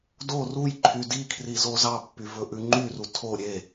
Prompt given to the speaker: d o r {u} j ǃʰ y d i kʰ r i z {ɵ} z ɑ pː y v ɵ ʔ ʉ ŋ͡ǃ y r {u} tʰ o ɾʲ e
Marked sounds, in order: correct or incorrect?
correct, incorrect: o, correct

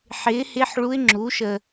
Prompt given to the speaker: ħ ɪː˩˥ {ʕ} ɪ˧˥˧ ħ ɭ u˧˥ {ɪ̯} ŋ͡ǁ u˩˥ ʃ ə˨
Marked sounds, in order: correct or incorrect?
incorrect: h, correct

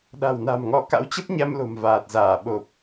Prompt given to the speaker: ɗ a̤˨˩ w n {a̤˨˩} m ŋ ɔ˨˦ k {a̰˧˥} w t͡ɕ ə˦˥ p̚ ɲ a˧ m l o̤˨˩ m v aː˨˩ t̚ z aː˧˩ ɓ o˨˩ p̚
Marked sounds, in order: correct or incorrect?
correct, correct

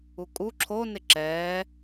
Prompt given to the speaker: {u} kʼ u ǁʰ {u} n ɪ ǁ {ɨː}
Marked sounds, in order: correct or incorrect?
correct, incorrect: o, incorrect: ɛː

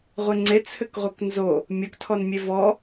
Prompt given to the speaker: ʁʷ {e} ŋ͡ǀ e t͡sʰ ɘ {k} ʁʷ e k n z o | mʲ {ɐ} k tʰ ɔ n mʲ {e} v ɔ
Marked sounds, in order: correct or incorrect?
correct, correct, correct, correct

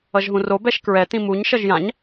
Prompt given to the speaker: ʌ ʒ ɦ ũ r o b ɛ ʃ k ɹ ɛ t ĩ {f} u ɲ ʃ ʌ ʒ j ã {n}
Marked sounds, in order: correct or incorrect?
incorrect: m, incorrect: ɲ

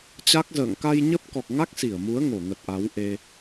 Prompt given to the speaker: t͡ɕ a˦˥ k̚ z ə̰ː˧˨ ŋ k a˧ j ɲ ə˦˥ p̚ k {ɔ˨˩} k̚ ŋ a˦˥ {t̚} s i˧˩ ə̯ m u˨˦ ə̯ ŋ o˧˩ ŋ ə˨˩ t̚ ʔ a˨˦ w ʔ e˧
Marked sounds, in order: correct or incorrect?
correct, incorrect: k̚

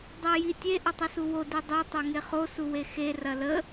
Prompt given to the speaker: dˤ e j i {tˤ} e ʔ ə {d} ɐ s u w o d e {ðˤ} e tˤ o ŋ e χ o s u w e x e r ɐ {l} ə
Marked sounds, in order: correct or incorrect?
incorrect: tʲ, incorrect: tˤ, incorrect: dˤ, correct

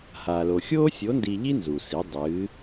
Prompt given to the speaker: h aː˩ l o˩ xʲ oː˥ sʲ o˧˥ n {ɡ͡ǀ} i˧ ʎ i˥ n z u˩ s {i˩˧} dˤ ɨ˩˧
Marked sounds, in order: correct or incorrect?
incorrect: d, correct

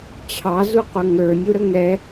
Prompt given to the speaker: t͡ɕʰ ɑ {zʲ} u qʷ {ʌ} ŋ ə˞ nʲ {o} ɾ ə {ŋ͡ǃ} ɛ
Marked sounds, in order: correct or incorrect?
incorrect: z, correct, incorrect: u, incorrect: ŋ

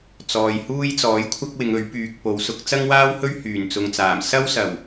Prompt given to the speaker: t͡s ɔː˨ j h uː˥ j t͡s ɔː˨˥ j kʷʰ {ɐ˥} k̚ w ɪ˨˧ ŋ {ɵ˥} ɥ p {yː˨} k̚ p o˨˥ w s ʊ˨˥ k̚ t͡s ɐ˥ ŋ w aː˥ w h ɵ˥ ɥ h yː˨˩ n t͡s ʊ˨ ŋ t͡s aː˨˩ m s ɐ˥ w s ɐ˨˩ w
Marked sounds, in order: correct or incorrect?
correct, incorrect: ɵ˨˥, correct

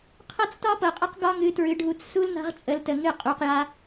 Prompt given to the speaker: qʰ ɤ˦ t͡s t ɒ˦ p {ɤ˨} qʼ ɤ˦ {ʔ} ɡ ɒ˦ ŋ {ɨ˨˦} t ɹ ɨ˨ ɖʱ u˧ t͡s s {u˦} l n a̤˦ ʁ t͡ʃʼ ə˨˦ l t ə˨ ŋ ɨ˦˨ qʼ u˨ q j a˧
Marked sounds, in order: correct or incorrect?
correct, incorrect: q, correct, correct

